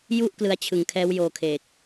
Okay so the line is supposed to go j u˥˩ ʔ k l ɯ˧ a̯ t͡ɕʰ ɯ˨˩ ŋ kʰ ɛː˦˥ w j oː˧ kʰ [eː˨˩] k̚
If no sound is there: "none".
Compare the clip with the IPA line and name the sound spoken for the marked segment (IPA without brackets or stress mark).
eː˨˩